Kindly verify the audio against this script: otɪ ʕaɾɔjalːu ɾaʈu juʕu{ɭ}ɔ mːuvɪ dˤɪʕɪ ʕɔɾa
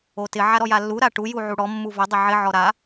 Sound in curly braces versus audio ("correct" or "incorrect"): incorrect